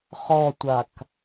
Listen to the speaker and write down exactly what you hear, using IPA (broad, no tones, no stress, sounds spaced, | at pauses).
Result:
χ ɔ tʷ a k